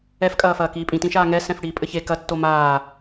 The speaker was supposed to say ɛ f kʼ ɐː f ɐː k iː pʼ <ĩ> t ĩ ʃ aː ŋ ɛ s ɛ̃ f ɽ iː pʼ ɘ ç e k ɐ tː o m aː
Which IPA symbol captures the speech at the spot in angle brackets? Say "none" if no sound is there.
ĩ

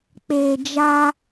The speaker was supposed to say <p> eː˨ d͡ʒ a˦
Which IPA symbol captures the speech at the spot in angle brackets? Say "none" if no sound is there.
k͡p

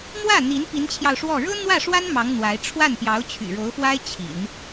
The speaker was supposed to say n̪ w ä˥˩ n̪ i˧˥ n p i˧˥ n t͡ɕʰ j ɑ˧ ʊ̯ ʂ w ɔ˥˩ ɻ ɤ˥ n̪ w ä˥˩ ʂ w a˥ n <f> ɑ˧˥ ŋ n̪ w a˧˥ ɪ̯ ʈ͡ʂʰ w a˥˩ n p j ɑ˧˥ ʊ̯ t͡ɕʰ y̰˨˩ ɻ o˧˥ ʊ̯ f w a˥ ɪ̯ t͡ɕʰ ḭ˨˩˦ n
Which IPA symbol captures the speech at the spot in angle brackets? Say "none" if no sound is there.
m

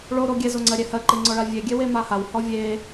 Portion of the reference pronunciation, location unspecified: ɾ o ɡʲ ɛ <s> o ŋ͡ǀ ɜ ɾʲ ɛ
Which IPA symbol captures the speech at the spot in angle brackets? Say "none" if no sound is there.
z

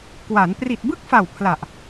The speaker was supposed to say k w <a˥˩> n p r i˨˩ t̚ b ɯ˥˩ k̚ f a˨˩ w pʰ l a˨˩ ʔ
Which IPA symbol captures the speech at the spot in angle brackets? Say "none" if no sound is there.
a˩˦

